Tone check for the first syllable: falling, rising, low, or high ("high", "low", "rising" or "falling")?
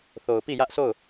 low